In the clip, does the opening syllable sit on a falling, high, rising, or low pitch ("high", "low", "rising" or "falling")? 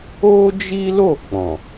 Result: high